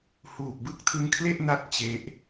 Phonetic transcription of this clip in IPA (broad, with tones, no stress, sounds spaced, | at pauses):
h uː˨˩ k̚ b ɯ˥˩ k̚ tʰ ɯ˦˥ ŋ kʰ l e˥˩ ʔ n a˥˩ t̚ t͡ɕ e˦˥ ʔ